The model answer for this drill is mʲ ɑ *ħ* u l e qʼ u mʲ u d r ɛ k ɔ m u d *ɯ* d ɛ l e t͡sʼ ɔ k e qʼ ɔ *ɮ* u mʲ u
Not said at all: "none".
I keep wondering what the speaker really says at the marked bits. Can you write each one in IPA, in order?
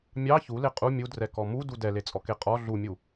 ç, u, ɮ

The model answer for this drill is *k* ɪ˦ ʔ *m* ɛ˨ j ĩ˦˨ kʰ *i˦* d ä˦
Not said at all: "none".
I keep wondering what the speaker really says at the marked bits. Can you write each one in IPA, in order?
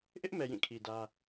ʔ, m, i˨

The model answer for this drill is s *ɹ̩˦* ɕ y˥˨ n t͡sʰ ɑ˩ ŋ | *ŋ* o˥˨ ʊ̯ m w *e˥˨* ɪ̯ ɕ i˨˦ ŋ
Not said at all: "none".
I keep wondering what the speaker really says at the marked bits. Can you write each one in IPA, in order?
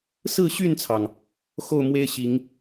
ɹ̩˥˨, x, e˦

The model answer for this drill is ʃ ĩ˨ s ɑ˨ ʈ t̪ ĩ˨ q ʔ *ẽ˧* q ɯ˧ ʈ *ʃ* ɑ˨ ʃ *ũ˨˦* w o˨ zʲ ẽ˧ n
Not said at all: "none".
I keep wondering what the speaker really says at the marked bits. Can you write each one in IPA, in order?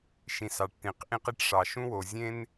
ĩ˧, ʂ, ũ˧

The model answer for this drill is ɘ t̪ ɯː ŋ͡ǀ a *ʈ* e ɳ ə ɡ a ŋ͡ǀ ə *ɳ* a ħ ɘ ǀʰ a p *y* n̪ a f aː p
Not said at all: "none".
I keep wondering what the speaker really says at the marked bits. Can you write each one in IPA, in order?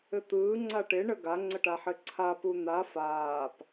ʈ, ʈ, u

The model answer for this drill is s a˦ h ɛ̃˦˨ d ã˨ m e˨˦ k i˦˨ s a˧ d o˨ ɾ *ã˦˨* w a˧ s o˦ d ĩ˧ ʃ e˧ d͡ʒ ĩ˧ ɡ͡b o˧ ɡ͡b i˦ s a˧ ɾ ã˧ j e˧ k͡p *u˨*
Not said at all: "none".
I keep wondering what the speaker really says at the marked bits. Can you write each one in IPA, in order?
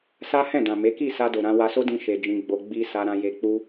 ã˧, u˦

